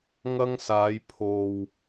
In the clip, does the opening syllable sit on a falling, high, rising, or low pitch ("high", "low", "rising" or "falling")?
high